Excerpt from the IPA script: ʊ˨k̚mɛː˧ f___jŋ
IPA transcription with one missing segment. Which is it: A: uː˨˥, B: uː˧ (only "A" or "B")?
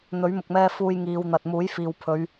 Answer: B